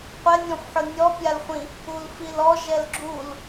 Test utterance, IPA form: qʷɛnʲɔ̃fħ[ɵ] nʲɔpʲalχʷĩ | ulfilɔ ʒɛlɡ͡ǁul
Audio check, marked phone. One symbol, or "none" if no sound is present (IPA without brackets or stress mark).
ʊ